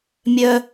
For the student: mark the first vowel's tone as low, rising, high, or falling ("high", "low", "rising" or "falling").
high